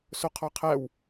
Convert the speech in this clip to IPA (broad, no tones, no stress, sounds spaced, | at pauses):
s o qʰ ɔ qʰ æ w